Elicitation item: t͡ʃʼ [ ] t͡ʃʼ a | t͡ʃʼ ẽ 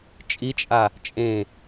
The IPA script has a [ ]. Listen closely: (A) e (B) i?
B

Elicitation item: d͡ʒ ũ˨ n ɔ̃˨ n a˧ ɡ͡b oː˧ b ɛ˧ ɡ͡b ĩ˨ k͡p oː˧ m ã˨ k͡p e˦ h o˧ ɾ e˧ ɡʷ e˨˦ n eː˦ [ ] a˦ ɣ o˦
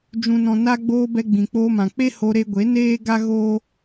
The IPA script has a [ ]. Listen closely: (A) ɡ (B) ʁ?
A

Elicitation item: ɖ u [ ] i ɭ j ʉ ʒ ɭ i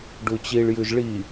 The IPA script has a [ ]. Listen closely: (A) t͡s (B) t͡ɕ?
B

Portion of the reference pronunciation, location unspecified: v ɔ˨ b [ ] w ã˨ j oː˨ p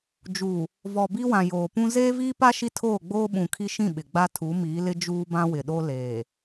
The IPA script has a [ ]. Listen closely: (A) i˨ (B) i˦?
B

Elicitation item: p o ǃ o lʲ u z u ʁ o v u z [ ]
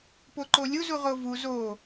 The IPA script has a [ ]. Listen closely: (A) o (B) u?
A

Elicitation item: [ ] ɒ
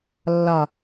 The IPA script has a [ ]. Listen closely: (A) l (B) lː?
B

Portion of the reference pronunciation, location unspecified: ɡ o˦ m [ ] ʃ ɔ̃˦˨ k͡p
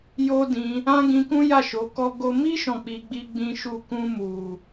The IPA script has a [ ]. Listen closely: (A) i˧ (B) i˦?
B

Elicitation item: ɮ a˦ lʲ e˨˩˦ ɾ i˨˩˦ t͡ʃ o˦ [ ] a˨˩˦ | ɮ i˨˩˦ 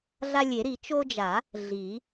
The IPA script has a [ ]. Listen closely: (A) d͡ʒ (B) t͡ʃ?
A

